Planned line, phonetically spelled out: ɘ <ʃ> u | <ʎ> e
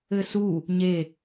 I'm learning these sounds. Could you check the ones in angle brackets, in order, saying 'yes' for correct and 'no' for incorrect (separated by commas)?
no, no